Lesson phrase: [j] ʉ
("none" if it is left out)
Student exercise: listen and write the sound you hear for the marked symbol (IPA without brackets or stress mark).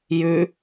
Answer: j